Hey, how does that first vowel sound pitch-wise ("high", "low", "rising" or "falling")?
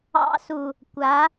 high